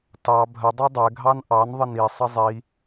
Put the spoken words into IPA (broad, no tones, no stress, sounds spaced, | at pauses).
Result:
t ɑ bʱ ə dˤ ɛ dˤ ɛ ɡʱ ɑ n ʔ ɑ n ðˤ ə n i sˤ ə zˤ i